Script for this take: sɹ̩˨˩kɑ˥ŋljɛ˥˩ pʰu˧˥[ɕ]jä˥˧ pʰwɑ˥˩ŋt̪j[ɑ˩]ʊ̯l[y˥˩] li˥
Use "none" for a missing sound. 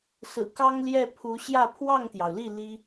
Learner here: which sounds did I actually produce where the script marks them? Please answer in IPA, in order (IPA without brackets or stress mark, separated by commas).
ɕ, ɑ˩, i˥˩